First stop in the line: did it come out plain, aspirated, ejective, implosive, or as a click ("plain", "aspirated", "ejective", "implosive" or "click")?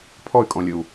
aspirated